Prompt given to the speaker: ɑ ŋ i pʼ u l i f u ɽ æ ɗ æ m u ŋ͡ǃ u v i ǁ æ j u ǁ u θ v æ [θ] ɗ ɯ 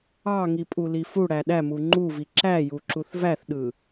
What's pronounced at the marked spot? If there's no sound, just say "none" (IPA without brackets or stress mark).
θ